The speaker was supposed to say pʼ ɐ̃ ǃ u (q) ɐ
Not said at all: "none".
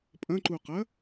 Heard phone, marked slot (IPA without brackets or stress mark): q